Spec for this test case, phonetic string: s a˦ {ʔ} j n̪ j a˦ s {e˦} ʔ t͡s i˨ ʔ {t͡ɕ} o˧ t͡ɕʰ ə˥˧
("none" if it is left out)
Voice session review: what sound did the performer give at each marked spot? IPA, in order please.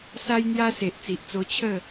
none, e˨, t͡s

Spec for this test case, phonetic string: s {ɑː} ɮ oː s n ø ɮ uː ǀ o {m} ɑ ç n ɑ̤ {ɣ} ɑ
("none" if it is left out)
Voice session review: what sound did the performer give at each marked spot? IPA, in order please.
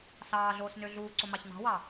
ɑː, m, w

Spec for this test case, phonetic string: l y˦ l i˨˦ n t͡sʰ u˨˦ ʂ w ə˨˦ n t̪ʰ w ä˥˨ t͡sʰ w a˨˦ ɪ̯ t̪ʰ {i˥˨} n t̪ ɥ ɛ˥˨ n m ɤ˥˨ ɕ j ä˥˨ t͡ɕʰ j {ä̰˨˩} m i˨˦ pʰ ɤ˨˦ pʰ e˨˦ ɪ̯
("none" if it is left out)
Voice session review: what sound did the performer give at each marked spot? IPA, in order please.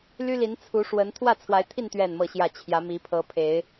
i˥˨, ä˨˦

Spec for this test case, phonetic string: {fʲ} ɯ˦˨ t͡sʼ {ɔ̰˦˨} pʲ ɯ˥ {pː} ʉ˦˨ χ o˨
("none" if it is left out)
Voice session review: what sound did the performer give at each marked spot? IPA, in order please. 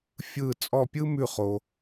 fʲ, ɔ˦˨, m

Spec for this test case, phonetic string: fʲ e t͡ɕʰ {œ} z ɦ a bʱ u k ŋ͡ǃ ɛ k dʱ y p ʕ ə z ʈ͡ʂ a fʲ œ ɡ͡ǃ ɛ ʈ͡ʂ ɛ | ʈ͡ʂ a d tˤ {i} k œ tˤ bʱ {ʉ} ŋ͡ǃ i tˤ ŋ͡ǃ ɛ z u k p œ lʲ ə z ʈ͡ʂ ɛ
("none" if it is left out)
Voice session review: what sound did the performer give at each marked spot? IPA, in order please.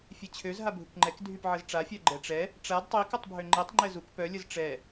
ø, i, ø

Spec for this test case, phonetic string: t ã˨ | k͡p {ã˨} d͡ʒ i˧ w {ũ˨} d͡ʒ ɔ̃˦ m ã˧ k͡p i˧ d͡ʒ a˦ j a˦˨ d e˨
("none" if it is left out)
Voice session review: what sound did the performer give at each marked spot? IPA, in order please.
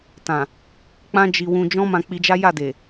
ã˦, ũ˧

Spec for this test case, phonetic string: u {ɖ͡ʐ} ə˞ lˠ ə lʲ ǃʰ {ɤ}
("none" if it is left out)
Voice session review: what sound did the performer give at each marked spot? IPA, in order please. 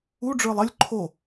ɖ͡ʐ, o

